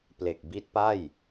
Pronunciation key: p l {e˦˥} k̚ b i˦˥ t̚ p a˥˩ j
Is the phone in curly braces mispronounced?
yes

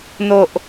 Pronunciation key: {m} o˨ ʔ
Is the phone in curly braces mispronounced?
yes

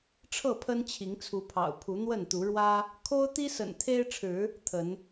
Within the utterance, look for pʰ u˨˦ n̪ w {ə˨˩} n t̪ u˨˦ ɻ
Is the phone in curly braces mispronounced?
yes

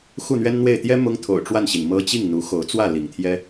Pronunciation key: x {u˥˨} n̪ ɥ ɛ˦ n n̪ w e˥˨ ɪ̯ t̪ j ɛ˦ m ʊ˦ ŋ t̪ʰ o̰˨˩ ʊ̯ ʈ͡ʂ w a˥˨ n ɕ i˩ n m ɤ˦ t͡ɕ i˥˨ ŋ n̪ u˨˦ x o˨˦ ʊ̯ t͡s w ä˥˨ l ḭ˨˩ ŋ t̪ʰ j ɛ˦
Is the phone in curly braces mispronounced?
no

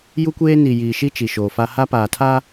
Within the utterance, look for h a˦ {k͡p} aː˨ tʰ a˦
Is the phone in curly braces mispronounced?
yes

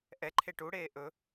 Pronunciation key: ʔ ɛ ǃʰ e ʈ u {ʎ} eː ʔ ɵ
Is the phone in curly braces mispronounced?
yes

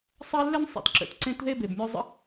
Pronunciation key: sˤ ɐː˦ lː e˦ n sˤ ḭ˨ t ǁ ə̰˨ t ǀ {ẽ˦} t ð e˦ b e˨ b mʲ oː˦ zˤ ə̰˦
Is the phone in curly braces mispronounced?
no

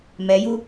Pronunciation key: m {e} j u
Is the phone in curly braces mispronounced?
yes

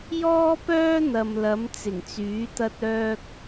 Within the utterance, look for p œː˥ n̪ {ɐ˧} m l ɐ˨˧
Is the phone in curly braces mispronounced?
yes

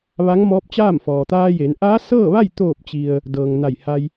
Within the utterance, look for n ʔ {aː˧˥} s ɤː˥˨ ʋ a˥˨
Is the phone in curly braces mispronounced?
no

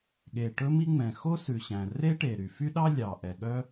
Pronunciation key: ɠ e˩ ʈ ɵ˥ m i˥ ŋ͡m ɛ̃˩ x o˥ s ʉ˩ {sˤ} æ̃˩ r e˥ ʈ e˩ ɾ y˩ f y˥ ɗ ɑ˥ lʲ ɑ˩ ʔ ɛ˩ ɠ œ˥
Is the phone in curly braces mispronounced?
yes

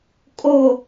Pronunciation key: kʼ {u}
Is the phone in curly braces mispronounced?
yes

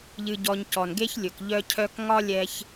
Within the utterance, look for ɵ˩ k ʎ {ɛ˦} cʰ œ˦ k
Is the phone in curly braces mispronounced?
yes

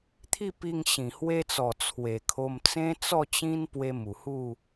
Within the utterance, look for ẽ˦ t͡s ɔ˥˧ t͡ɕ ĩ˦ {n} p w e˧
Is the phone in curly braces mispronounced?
no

